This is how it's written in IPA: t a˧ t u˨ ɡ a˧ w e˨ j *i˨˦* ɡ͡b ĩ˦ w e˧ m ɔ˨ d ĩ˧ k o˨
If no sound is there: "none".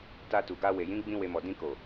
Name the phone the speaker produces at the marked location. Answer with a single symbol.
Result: ĩ˨˦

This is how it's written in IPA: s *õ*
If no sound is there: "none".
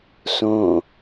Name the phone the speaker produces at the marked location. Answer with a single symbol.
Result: õ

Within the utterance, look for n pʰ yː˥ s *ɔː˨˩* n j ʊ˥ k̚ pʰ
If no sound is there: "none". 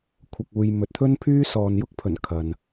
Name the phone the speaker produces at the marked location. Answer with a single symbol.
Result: ɔː˨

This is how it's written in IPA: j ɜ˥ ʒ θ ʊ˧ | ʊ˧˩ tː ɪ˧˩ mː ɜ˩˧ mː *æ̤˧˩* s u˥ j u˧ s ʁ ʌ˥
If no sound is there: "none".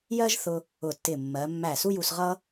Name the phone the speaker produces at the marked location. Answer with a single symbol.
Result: æ˧˩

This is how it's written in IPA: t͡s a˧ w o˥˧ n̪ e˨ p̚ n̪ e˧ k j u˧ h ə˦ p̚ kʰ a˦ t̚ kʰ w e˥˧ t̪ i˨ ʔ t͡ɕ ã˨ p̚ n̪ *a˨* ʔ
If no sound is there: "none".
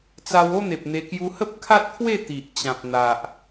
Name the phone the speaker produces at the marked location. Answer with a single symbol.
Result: a˨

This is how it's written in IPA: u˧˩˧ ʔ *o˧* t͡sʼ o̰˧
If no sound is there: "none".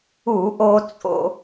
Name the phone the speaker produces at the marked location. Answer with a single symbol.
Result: o˧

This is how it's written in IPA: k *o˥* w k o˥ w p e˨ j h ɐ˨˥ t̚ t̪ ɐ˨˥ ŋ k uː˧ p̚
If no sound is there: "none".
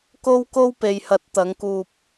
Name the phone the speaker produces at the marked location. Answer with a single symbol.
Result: o˥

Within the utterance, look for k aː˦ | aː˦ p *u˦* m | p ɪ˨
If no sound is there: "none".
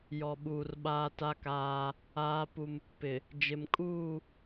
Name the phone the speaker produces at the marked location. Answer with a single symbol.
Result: u˦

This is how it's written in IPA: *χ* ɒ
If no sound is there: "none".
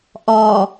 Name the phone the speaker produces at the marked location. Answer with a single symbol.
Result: ʔ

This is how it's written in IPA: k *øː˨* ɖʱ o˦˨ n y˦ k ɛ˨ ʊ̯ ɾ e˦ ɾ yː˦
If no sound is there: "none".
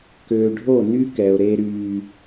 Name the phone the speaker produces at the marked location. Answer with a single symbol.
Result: øː˨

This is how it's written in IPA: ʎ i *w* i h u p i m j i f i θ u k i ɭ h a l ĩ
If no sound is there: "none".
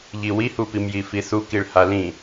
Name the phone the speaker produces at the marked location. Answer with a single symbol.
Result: w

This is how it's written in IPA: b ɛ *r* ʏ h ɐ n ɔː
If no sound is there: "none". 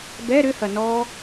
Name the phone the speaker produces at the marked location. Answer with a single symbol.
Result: ɾ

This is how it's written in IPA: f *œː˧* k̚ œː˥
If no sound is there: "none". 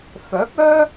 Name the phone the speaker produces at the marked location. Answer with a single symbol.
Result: œː˨˥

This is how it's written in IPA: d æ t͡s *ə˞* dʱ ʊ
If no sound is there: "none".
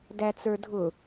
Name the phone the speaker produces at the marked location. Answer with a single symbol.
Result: ə˞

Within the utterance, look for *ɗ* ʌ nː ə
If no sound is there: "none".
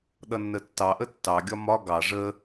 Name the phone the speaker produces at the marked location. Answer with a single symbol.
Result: ɗ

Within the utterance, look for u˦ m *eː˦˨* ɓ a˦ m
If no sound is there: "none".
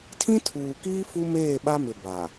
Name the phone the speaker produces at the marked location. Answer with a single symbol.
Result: eː˦˨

